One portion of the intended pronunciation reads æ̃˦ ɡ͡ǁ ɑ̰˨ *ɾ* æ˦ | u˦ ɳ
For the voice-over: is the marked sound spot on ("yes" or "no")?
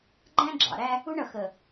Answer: yes